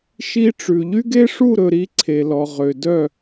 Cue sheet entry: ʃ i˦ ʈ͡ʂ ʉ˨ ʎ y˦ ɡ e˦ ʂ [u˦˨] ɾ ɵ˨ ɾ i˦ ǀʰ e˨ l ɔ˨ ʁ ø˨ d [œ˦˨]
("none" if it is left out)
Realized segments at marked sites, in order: u˦˨, œ˦˨

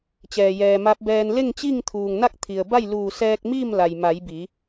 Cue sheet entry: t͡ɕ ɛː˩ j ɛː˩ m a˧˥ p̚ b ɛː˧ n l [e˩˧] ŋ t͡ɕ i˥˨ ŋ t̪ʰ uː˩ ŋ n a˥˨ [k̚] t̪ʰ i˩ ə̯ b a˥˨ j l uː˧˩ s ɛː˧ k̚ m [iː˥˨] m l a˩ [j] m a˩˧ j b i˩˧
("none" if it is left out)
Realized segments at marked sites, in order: e˥˨, k̚, iː˥˨, j

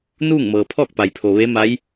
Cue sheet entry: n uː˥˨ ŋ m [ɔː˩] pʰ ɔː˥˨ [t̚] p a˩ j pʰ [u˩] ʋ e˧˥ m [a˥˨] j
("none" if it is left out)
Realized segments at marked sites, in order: ɤː˩, k̚, o˩, a˧˥

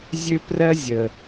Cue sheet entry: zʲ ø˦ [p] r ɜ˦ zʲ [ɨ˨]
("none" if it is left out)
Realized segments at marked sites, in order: p, ə˨

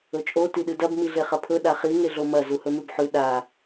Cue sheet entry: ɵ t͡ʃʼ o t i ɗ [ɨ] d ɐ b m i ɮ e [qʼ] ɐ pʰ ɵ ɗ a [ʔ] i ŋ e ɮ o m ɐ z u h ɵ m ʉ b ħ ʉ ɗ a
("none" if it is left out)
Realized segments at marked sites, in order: ɨ, χ, χ

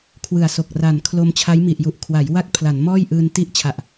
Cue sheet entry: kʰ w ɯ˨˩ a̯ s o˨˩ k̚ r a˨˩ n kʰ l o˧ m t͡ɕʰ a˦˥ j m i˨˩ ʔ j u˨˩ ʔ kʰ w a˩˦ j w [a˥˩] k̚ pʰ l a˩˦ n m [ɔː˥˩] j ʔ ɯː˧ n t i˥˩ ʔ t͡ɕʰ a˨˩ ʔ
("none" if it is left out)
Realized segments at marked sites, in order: a˥˩, ɔː˥˩

